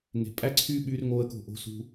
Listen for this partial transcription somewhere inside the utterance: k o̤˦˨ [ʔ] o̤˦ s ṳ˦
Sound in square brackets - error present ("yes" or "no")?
no